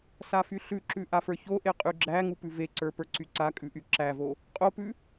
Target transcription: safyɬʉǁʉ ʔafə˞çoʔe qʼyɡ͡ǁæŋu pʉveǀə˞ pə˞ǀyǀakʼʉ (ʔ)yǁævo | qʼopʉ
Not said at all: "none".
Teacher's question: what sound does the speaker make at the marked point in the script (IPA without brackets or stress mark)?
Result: ʔ